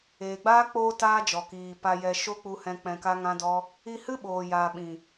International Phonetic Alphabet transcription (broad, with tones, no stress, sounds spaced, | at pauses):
eː˨ ɡ͡b aː˦ k͡p oː˧ t aː˦ d͡ʒ ɔ˨ k iː˨ p a˧ j ɛ˧ ʃ o˦ k͡p u˧ h ɛ̃˧ k͡p ɛ̃˧ k a˦ ŋ ã˦ d ɔ˦ | i˧ h ɨ˦ ɓ oː˨ j aː˨ ɓ ĩ˨